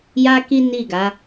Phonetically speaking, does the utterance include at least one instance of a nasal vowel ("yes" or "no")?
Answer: no